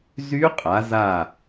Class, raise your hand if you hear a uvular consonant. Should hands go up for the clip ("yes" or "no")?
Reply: yes